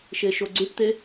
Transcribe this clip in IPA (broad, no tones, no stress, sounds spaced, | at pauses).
ʃ e ʃ o ɡ͡ǀ y ʈ t̪ e